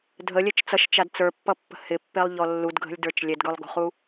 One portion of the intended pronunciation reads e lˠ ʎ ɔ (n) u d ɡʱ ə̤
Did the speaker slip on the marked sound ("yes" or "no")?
yes